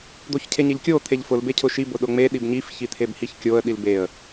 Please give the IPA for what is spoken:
d̪ o ç cʰ e ɲ e ʎ kʲ o t̪ʰ e ʎ f ʊ l b e cʰ ʊ ʃ i b ʊ ɗ ʊ ŋ͡m e ɗ i b ɲ i f ç i t̪ʰ e b h i ç kʲ o ə̯ ɗ i l b e ə̯

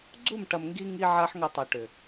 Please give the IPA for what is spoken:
ɡ͡ǀ u˦˨ m ʈ ɐ˨ m ŋ ɡ i˧ ŋ i˦ ʕ a˦ ħ ŋ ɐ˧ tˤ ɐ˨ ʈ ʏ˨

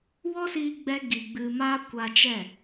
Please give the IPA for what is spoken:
w ɔ˦ s iː˧ ɡ͡b ɛ˧ ɡ i˨ ɡ͡b ɨ˧ m aː˦ kʷ a˧ t͡ʃ ɛ˦˨

